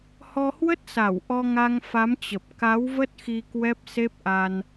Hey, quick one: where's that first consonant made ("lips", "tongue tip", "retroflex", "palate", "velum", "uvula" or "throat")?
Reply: throat